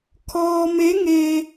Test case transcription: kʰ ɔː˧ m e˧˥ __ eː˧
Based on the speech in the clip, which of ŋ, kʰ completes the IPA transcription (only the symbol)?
ŋ